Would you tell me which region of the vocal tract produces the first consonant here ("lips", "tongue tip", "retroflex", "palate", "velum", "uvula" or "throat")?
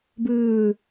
lips